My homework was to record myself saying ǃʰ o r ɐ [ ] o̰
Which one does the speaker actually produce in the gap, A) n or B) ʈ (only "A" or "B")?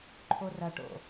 B